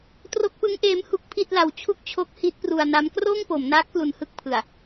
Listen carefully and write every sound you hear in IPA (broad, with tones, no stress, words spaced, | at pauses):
tro˦˥k̚pɯ˦˥ŋʔeː˦˥m hu˦˥k̚ pʰi˥˩t̚la˧w t͡ɕʰu˥˩k̚t͡ɕʰo˦˥k̚ hi˦˥t̚pru˧a̯na˦˥m kroː˥˩ŋpo˩˦mnaː˦˥k̚ plu˧nhɯ˥˩k̚ pʰɯ˨˩a̯